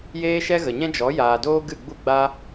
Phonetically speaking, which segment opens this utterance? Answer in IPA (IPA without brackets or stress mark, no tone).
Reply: j